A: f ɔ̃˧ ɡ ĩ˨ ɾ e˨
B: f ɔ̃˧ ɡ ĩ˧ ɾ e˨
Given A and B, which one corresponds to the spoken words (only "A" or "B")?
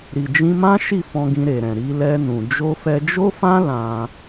B